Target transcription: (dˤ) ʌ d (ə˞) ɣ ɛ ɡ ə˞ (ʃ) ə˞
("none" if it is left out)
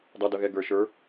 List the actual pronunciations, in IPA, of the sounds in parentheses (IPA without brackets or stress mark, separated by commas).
dˤ, ʌ, ʃ